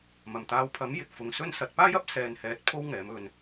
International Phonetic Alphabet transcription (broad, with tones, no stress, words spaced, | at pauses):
mɐ˨˩mt̪aː˨˧wpʰɐ˨˥m jɪ˨k̚fʊ˨ŋ sɵ˧nsɐ˨t̚ paː˥jɐ˥p̚ sɛː˨nhɛː˨˥t̚ pʰo˥wŋɛː˨˥mɵ˧n